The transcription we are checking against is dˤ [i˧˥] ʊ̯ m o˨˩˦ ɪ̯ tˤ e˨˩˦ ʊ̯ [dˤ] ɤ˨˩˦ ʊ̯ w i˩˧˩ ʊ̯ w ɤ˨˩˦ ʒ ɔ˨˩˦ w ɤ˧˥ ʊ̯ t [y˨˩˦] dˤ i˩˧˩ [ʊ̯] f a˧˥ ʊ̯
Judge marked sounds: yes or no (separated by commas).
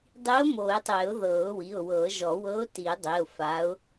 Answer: yes, no, no, yes